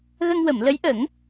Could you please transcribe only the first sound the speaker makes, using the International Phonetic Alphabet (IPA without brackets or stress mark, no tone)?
ɣ